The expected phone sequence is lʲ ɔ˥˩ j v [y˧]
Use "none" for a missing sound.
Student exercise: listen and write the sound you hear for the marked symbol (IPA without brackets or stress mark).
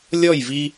i˧